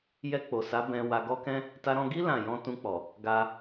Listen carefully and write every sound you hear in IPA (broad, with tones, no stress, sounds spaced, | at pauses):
j ɛ˧ k͡p o˨ s a˨˦ b ɛ̃˧ w a˧ ɡ ɔ˦ k ɛ̃˦ | t a˧ ɾ ɔ̃˧ ɡ i˦ l ã˦˨ j ɔ̃˧ t ũ˧ k͡p ɔ˨ | ɡ a˧